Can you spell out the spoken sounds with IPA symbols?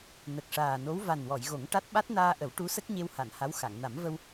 nə˨˩k̚ʂaː˨˩no˧˥w va˨˩nwɔ˨˩˨j ɣo˨˩˦ŋʈa˦˥t̚ ɓa˦˥t̚naː˧ʔə˨˩˦w ʈu˧˥sə˦˥k̚ ɲe˧wha˨˩˨n ha˧˥wxa˨˩˨ŋ na˨˩˦mvə˧w

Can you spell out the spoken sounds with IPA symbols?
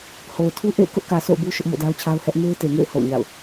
ho˨ʊ̯tʰu˦ʔḛ˦˨ɪ̯ kʊ˦ʔkä˨ so̰˦˨ʊ̯bu˦ ʃʊ˦ʔmo̰˦˨da˦ʊ̯t͡ɕʰa˦ʊ̯ hɛ˦ʔ me˦ɪ̯te˨ŋḛ˦˨ɪ̯ ho̰˦˨ʊ̯ɲa̰˦˨ʊ̯

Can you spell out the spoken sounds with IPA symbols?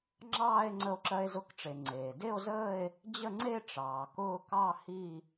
ŋ͡ǁɑː˥˧e̯ ŋ͡ǀə˧o̯ǁɜ˧e̯zʊ˧kʈ͡ʂe˩ ŋ͡ǀeː˩de˥˧o̯zəː˥˧e̯ | d͡ʑə˥˧ŋ͡ǀe˥˧ ʈ͡ʂɑː˩kʊː˥˧ kɑ˥˧hi˥˧

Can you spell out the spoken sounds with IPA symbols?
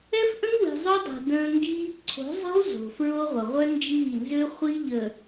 ɛ˦fʔə̃˦ŋ wi̤˨zˤo˦dˤɛ̤˨ də̃ː˦ŋɡiː˦ ǀʰo̤˨˦zˤɛ̤˦w zo̤˨fɹo˦ʁʷə˨ ʁʷœ˦nd͡ʒiː˦˨nzø˦ χʷi˦ʎə˨

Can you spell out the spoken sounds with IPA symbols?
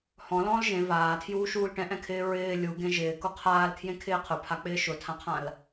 hɔ̃lɔ̃ːl ʒẽ vaːtʰjuːʃuːl ʈɛ̃ʔɛ̃kʰɪː ɹɪː lʲuɡẽ ʒɪːkʊ qʰaːlkʰjẽkʰɪː qʰʊpʰak͡pɪː ʃʊtʰãqʰãl

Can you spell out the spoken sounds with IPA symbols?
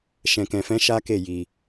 ʃɛ̃˧kɛ̃˧fɛ̃˦ ʃa˦ke˦˨ ji˧

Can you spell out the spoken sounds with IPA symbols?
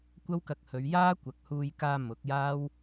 kʷɐ˥wkɐ˧k̚hɵ˨˧ɥ jaː˥ kʷɐ˨k̚ huː˧jkaː˧ mʊ˨˥k̚jaː˥w

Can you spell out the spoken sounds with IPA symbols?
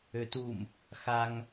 øtum | xaŋ

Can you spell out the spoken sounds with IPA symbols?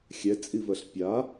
xʲɛt͡sʼivɜɬ pʲa

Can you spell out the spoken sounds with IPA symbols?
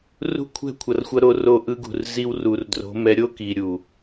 rṳ˦˨kʷʰɛ̤˦˨kʷʰʌ˨rxʷʌ˧ ɾo˧ro˧ʔɯ˧ɡṳ˨r zi˧wru˨rdro̤˨˦mɛ˧ ɾʲo˦ki˨ɾʲu˨

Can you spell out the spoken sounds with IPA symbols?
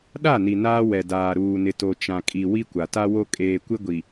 ɗa˦˨ni˨ naː˦wɛ˨daː˨ ɾuː˨nɪ˨to˨ t͡ʃã˨kʼi˨ wi˦kʷa˨ta˦wo˦ kʼeː˨kʷɪ˦ɡʷi˨

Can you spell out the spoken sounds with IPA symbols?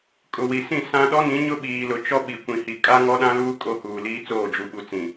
kʼʊ˨wi˨sĩ˦˨ sã˦ ɗɔ˦nĩ˨˦ ɲʊ˦ɓiː˨lʊ˨ t͡ʃɔ˦ ɓi˨ kʷĩ˨ hi˨kʼa˦ ŋɔ˦ɗã˦luː˦ kʼo˦huː˨ liː˦t͡soː˦˨ d͡ʒu˨ɓu˨ t͡sĩ˨

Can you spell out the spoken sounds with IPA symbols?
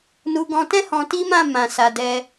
nu˧ɡɔ̃˧tɛ̃˦ hɔ̃˧ti˦mã˦˨ mã˨sa˨dɛ˧

